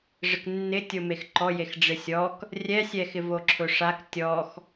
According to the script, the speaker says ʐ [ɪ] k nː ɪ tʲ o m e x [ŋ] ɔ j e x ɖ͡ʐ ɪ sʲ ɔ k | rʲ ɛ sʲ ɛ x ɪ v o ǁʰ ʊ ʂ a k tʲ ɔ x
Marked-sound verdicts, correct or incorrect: correct, incorrect: ǃ

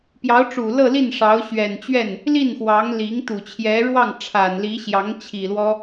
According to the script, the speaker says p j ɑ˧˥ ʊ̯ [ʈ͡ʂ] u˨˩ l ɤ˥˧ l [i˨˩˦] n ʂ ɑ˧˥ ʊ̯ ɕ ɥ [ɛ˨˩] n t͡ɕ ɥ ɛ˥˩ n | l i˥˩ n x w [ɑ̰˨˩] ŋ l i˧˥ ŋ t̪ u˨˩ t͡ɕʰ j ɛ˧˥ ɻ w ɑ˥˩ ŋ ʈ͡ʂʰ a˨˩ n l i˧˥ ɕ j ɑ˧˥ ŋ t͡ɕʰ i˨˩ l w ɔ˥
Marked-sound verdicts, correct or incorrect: correct, incorrect: i˥˩, correct, incorrect: ɑ˧˥

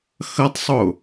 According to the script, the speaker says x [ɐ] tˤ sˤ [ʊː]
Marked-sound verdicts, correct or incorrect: correct, correct

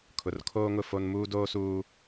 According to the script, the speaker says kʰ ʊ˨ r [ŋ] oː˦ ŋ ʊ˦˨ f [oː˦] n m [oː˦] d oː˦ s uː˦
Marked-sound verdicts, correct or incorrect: incorrect: kʰ, incorrect: o˦, incorrect: uː˦

